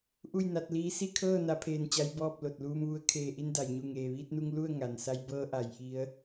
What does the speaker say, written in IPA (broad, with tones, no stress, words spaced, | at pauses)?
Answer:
ʔu˥˨jna˧t̚liː˧˥ si˥˨kʰɤː˥˨ na˧˥pʰeː˧nt͡ɕa˧˥j bɔː˥˨p̚ lo˧˩t̚luː˧mʋu˧ə̯ kʰeː˧˩ʔi˧nda˩j ɲu˧˩ŋeː˩ʋiː˧t̚nu˧ŋ lu˥˨ə̯ ŋa˩nsa˧j bɤː˧ʔa˩˧j ʔi˧˥ə̯